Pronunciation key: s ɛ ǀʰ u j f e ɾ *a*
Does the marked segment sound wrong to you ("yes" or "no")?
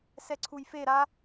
no